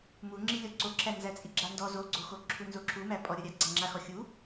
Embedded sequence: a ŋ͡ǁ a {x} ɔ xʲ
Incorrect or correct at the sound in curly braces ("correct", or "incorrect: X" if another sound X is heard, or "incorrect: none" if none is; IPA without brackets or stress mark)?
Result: correct